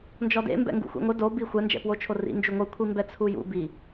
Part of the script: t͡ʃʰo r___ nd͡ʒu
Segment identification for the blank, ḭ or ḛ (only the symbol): ḭ